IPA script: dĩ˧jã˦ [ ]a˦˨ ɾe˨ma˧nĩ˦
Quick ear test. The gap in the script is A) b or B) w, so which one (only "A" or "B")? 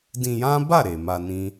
A